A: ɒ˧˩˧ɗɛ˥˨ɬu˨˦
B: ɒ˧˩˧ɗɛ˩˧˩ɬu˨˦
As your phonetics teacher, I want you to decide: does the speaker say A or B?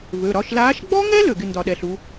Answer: B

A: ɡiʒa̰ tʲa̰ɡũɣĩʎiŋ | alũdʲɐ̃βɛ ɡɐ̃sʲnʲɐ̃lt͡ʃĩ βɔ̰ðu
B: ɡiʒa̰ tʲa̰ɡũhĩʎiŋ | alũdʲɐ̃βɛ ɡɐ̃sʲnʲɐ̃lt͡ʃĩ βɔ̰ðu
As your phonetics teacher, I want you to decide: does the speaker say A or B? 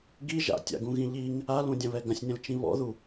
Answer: A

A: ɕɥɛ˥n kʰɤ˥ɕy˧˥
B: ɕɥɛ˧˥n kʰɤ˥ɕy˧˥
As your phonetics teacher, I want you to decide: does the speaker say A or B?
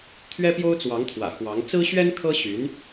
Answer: A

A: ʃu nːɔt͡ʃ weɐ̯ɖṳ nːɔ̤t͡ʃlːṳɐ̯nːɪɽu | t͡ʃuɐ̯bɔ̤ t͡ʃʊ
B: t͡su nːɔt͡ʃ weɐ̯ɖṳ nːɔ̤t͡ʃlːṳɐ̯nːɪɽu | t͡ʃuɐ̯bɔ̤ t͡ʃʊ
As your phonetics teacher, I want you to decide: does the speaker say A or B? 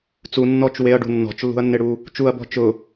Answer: B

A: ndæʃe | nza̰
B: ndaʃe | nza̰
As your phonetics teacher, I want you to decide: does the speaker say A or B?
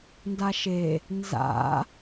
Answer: B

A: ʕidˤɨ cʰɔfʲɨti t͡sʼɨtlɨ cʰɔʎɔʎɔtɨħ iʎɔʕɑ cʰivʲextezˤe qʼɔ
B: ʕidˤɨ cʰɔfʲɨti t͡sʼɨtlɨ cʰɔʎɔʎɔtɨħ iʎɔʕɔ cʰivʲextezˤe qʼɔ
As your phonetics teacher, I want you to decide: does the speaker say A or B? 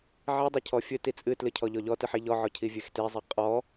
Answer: B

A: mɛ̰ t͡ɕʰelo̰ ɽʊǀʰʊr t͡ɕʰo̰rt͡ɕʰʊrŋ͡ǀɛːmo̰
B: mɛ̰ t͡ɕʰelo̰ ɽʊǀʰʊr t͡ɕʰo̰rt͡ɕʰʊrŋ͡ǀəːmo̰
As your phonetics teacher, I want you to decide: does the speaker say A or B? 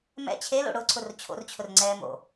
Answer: A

